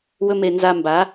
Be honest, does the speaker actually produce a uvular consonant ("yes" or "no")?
no